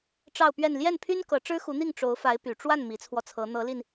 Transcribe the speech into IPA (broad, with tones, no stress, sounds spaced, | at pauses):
ʈ͡ʂ ɑ˥˧ ʊ̯ p ɥ ɛ˥˧ n l j ɛ˥˩ n pʰ y˥ n k ɤ˧˥ ʈ͡ʂ ɻ̩˥ x u˧˥ n̪ i˥˩ ŋ ʈ͡ʂ o˧˥ ʊ̯ f a˧˥ ɪ̯ p y˨˩ ʈ͡ʂ w a˥˩ n m i˧˥ t͡sʰ w ɔ˧ t͡sʰ ɤ˧˥ n̪ ɤ˧˥ l i˧ n